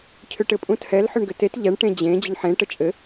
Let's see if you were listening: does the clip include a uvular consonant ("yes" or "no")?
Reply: no